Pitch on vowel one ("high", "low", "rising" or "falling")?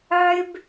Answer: high